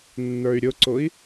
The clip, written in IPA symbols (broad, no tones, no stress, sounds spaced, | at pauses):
nː ə˞ y̯ ɾʲ ʊ ǀ ʊ i̯